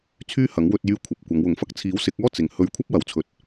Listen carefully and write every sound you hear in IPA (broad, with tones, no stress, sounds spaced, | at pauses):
t͡sʰ yː˥ h ɐ˨˥ ŋ w ɵ˧ t̚ j yː˥ kʷʰ ɐ˧ p̚ kʷ ɐ˨˧ ŋ w ʊ˨˥ ŋ f ɐ˧ k̚ t͡sʰ iː˨˥ w s ɪ˨˥ k̚ ɔː˥ t͡s ɪ˨ ŋ h ɵ˧ ɥ kʷʰ ɐ˥ p̚ w ɐ˨ w t͡sʰ ɵ˨ t̚